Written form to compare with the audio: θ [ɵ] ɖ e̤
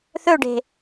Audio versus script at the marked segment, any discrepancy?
no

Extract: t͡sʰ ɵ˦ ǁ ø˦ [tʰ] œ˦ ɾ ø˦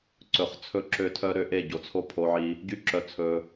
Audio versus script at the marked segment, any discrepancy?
no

